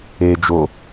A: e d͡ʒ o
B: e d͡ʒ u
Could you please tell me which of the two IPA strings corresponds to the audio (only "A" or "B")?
A